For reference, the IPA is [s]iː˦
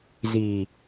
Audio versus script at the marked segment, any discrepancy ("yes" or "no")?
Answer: yes